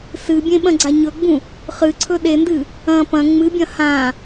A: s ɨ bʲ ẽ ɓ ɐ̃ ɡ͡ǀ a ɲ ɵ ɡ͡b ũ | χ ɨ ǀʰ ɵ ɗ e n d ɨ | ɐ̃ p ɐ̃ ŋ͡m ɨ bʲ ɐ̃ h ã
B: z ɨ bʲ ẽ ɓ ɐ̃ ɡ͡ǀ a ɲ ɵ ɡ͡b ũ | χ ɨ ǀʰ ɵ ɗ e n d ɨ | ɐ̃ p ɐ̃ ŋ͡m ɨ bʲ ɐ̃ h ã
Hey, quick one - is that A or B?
A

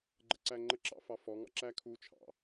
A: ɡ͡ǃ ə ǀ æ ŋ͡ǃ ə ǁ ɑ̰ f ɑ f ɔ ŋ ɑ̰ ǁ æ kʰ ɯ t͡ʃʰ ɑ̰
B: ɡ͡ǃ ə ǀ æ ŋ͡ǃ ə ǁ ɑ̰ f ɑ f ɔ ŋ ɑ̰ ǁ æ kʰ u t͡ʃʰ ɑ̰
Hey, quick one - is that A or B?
B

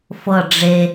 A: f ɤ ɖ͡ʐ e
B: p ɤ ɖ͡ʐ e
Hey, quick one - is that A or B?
A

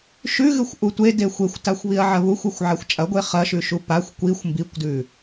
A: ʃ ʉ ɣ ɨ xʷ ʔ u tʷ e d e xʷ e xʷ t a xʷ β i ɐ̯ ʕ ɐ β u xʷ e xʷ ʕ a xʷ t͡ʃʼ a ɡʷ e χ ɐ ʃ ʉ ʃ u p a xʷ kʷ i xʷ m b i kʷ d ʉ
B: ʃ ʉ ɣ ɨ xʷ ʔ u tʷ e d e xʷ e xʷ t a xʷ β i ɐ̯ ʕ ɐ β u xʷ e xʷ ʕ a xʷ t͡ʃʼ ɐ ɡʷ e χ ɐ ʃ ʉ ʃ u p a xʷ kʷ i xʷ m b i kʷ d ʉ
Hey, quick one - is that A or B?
B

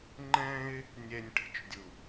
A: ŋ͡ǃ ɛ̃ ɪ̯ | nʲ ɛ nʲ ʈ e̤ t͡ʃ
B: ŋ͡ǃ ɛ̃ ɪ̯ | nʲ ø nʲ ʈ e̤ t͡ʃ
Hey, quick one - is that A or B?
A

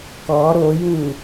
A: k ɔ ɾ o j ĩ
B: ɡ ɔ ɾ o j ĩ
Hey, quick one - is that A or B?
A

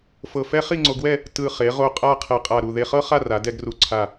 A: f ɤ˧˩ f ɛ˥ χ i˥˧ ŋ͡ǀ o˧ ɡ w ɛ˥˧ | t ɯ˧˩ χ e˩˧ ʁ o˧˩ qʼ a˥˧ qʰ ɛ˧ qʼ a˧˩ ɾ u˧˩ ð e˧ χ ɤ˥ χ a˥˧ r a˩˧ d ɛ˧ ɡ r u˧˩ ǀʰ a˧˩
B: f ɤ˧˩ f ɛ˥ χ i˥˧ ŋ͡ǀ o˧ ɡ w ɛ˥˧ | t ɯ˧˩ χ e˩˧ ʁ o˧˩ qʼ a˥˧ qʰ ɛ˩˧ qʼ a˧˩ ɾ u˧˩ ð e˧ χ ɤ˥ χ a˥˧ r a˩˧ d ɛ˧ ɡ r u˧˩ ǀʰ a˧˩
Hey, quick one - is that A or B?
A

